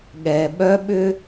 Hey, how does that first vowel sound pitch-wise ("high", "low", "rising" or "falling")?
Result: low